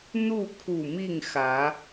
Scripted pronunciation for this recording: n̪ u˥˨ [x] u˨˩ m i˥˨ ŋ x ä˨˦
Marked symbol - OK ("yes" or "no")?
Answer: no